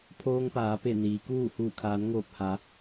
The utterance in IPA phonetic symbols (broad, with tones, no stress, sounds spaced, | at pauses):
pʰ oː˧ ŋ p aː˩˧ p e˧˩ n iː˩˧ k uː˥˨ h uː˧˩ kʰ aː˩˧ n ŋ oː˧˩ p̚ h a˩˧